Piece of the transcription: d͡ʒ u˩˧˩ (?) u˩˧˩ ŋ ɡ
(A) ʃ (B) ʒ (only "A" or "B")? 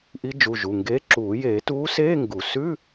B